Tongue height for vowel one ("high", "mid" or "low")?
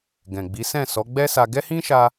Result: mid